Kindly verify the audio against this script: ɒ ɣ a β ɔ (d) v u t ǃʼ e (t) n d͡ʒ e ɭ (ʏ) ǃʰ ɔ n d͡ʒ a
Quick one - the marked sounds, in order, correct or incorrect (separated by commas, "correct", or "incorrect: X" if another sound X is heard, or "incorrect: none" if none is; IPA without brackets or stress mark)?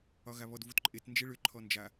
correct, correct, correct